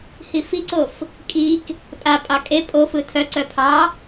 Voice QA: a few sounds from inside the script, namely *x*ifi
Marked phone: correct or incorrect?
incorrect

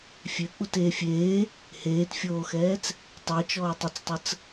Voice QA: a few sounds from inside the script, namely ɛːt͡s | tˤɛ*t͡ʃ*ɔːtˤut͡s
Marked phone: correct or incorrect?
correct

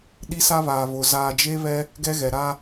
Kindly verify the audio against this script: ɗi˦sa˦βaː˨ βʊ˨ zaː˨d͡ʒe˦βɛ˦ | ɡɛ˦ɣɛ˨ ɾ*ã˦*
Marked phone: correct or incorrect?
incorrect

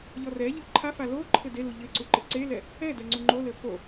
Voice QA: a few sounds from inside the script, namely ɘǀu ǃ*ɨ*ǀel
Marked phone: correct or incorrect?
correct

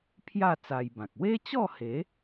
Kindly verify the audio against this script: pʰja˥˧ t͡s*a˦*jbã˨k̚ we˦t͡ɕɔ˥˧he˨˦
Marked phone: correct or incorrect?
incorrect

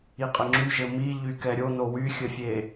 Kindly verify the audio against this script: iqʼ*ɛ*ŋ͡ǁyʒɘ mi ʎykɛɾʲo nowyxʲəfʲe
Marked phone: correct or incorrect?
incorrect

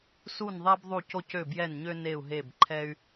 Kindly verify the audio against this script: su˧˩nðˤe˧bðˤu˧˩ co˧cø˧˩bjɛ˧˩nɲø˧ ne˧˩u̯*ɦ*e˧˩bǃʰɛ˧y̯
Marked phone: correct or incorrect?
correct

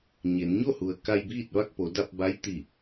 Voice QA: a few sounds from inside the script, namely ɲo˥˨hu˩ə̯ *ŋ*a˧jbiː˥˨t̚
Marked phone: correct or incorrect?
incorrect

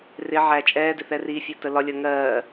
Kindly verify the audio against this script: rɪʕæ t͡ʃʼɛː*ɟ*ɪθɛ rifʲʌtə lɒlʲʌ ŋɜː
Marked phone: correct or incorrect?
incorrect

